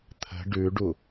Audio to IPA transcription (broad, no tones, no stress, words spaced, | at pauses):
t̪ʰə̤ ɖʉɖu